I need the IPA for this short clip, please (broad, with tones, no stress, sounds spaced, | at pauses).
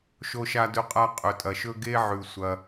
ʃ o˧ ʃ a˧ d ɵ˧ qʼ a˧ qʼ ɵ˩ tʼ ɐ˩ ʃ ɵ˧ ɡ e˧ ʕ ʉ˩ sʷ ɐ˩